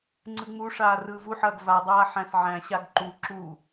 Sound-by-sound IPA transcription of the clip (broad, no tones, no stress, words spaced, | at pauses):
ŋ͡ǀɯŋ͡muʂaː rɯːvuħɐːɡ vadˤaː ħæ̃sʕæ̃ɕaɡ ǃu ǁu